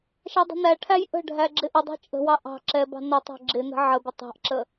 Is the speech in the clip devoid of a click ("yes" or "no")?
no